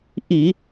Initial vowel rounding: unrounded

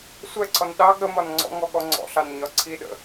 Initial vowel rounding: unrounded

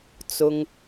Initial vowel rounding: rounded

